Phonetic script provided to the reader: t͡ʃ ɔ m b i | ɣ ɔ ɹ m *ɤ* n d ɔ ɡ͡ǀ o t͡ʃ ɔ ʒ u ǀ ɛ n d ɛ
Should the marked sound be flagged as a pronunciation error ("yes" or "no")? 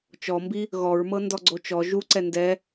no